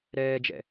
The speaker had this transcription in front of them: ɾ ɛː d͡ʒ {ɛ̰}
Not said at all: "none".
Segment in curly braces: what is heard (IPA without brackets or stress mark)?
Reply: ɛ̰